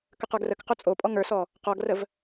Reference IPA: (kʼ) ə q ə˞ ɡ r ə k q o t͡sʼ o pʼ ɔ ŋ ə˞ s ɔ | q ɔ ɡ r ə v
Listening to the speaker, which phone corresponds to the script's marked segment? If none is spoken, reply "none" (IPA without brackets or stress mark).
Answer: k